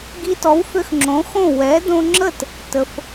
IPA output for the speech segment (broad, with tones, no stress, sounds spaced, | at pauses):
ɡ i˧ t ɔ˩˥ w f ʏ˧ x ŋ͡ǁ õ˩˥ x õ˥˩ w ɛ˩˥ d õ˧ ŋ͡ǁ ə˥˩ t | t ə˩ f